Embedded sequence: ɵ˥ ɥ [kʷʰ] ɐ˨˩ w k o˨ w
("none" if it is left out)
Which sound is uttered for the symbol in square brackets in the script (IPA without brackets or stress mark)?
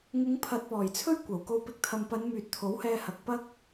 kʷ